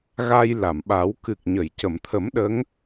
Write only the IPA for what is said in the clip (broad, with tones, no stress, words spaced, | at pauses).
ɣa˧jla˨˩˨mɓa˨˩˦w kɨ˨˩k̚ɲə˨˩˨jcə˨˩˨mt̪ʰə˨˩˦m ɗə˧˥ŋ